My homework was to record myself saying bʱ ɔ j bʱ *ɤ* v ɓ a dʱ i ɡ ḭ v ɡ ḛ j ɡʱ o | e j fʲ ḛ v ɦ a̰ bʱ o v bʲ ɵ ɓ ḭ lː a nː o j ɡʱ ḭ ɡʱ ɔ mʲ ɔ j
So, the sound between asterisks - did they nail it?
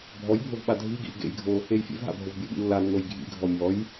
no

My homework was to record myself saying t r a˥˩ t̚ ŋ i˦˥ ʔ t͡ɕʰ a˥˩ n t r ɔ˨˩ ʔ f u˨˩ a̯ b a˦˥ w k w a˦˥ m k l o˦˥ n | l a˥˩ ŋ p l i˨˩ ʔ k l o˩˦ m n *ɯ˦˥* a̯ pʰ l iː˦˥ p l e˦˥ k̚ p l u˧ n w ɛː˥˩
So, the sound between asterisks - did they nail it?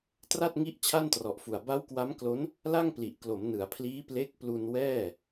no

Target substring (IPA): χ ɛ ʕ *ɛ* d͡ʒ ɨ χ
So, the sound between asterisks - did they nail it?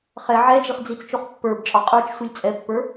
yes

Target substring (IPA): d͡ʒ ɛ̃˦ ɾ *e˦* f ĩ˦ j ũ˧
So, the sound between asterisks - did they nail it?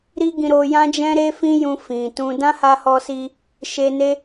yes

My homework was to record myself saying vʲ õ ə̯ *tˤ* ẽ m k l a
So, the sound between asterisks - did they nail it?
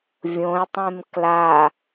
yes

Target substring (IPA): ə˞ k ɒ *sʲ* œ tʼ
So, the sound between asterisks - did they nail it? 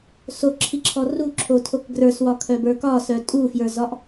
no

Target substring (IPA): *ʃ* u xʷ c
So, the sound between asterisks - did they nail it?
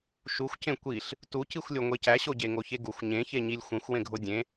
yes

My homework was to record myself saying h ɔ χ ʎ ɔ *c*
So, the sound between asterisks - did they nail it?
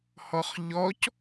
yes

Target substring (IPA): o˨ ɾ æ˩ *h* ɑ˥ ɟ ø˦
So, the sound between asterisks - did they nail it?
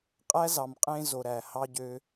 yes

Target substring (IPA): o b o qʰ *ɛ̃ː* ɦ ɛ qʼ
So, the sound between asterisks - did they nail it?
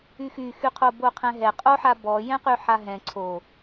no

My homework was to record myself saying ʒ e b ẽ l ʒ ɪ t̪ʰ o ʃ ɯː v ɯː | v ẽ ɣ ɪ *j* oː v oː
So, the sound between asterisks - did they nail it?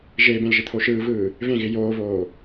yes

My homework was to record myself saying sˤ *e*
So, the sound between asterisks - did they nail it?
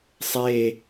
yes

